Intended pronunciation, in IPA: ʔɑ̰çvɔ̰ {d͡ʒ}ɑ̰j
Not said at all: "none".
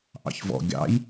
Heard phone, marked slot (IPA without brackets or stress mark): ɡʲ